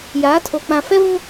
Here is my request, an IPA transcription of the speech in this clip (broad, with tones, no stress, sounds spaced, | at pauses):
j aː˨˦ tʰ o˨ k͡p ã˨ f ɛ˦ v ũ˦